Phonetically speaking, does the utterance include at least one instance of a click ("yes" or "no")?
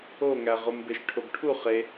no